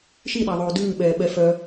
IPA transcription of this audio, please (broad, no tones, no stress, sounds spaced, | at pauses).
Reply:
ʃ i ɗ æ ðˤ oː d ʉː ɓ ɛː ɓ ɛ f œ